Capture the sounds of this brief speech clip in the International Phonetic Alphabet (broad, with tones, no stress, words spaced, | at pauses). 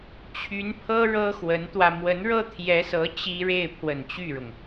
t͡ɕʰy˧˥npʰɤ˥ ɻɤ˥xwə˧˥nt̪wä˧ mwə˧˥nɻɤ˥t̪ʰjɛ˧˥sɤ˧˥ t͡ɕi˥ ɻe˥˩ɪ̯pʰwə˨˩n t͡ɕy˥˩ɻʊ˩ŋ